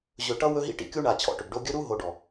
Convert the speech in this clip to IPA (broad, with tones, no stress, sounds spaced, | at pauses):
ʑ ɵ˨ ʈ ʌ˦ w ɵ˦ ɦ ḭ˦ ʈ ḭ˨ kʲ u˦ ɳ a˨ t͡ɕʰ ɔ̰˨ ʈ ɵ˨ b ɖ o˦ ɡʲ ɵ˦ ɾ u˦ ɦ o˨ ɖ ɔ˨